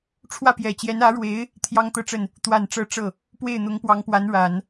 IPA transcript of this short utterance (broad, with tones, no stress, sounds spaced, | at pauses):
ʈ͡ʂʰ w ä˥˩ p j ɛ˨˩ t͡ɕ j ɛ˧˥ n ä˧˥ ɻ w e˧˥ ɪ̯ | t̪ʰ j ɑ˥ ŋ t̪ ɤ˥˧ ʈ͡ʂ ə˥˩ n | t̪ w a˨˩ n ʈ͡ʂ ɤ˧˥ ʈ͡ʂ ɤ˥˩ | p w e˥˩ ɪ̯ n̪ ʊ˧˥ ŋ p w ɑ˧˥ ŋ p w a˧˥ n ɻ a˨˩˦ n